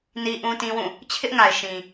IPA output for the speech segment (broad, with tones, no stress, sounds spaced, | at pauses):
n i˦ ʔ ũ˦ t ĩ˦ w ũ˦˨ | t͡ɕʰ ɪ˦ ʔ ŋ a˨ ɪ̯ ʃ ĩ˨